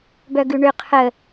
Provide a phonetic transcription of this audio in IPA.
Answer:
bœɡʉɳʏ qʰə

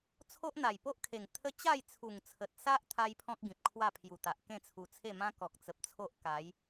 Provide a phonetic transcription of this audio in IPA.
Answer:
t͡sʰo˦ʔn̪a˨˩jpo˦ʔkʰe˨˩ŋ t̪ʰə˦ t͡ɕa˥˧jt͡sʰu˨˩ŋt͡sʰə˨t̚sa˦ʔ t̪ʰa˦jpʰɔ̃˦k̚ɡĩ˨p̚ kʰwa˥˧pʰju˨˩t̪a˨ʔ kẽ˥˧t͡sʰu˧t͡sʰe˥˧mã˦ kɔ˨k̚t͡sə˨p̚t͡sʰo˦ʔ ka˨˦j

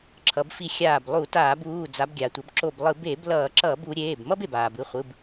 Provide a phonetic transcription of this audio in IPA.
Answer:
ǁʰʌ˩˧bfi˧˩ xʲaː˧˩b lˠu˧˩˧taː˧˩˧buː˩˧˩ d͡za˩˧bɡʲa˩tʷʌ˩˧b ǁo˧˩blˠɯ˧˩˧ be˧˩˧b lʌː˧˩˧ǁʌː˧˩˧b u˩˧ ɾʲeː˩˧˩bmʌ˦b e˩baː˩bɯ˩˧˩ χʷɯ˩˧˩b

